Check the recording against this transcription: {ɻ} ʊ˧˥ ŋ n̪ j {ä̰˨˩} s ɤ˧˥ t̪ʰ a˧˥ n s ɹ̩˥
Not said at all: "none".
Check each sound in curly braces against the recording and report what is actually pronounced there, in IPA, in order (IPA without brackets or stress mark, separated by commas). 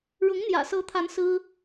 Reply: ɻ, ä̰˨˩